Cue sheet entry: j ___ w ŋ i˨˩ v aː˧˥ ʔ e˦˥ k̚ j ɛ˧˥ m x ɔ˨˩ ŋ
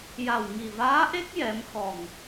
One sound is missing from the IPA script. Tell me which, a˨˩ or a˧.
a˨˩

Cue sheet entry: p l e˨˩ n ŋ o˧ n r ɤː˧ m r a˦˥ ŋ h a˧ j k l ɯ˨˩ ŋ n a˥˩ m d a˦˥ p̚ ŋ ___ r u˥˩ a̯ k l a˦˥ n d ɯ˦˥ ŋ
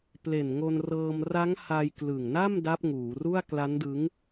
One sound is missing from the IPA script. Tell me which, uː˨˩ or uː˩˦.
uː˩˦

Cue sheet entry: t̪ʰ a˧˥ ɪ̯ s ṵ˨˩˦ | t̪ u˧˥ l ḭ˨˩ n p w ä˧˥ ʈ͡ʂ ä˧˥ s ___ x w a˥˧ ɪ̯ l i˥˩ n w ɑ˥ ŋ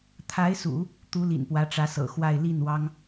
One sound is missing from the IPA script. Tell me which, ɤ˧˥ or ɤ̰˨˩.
ɤ̰˨˩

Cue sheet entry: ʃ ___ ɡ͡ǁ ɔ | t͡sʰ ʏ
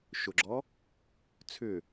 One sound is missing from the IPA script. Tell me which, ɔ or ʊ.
ʊ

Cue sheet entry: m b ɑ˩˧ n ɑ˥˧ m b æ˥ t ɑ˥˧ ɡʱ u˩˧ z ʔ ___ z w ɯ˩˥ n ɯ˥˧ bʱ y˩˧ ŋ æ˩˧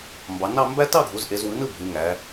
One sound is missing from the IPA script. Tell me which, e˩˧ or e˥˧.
e˩˧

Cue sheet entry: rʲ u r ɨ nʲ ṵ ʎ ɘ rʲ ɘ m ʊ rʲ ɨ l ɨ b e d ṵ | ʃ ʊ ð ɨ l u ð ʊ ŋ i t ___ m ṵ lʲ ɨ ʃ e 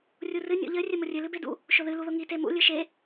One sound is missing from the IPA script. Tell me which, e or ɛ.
e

